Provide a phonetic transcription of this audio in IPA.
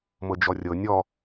m ɤ d͡ʒ ɔ rʲ ɤ nʲ ɔ

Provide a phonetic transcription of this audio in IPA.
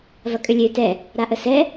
v ɐ kʼ ʏ lʲ ø t ɛ | ɾ a ʔ ə s ɛ

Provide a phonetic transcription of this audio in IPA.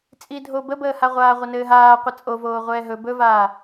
t͡sʼ i dʱ o b ə b əː h a ʁʷ aː ʁʷ ə n ɘː ɦ aː qʷ ʌ t͡sʼ o v oː ʁʷ ɛː ɦ ɵ b ɵ v aː

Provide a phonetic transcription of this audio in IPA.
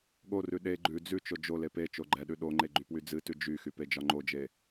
ɠ o r ʉ ɗ e ɡ͡ǃ ʉ d͡z ʉ t͡ʃ o d͡ʒ o l e p e t͡ʃ o ɡ͡ǃ ɛ ɗ ʉ ɗ o ŋ͡ǃ e ɡ͡ǃ y p w y d͡z ɨ t ʉ d͡ʒ y x y p e d͡ʒ ɒ ŋ͡ǃ o d͡ʒ e

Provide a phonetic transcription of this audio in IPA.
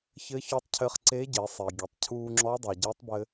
ç ɘ˧˥ ç ɔ˧˥ tˤ cʰ ɘ˧ χ ǀ eː˧˥ ɟ e˩˧ sˤ e˩ ɡʲ e˩ tˤ cʰ uː˧ ŋ͡ǁ ɔ˧˥ dˤ e˩ ɟ əː˧˥ tˤ b ɘ˧

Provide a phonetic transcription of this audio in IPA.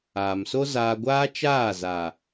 aː˨ m s o˦ z aː˧ ɡʷ aː˦ t͡ʃ aː˦˨ z a˨

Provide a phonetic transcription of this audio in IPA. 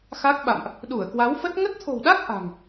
x a˦˥ k̚ ɓ a̰˧˨ m ʔ | ɗ u˧˩ ə̯ k w a˨˦ w f ə˦˥ t̚ ŋ ə˦˥ t̚ t̪ʰ o̤˨˩ w ɗ a˦˥ k̚ ʔ a̤˨˩ ŋ

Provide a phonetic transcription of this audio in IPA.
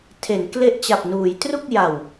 tʰ e˩˦ n k l e˦˥ ʔ t͡ɕ a˨˩ p̚ n uː˩˦ j t r u˥˩ k̚ j a˨˩ w

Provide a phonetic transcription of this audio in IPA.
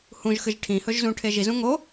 h ũ ʒ x ɨ ʒ ʈʰ ĩ h ɵ ʒ z ũ ʈʰ e ʒ i z ũ ŋ o

